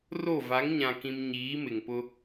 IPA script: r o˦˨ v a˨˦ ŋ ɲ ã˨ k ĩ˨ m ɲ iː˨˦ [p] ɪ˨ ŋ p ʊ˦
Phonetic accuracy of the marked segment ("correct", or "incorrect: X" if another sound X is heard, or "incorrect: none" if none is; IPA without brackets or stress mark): incorrect: m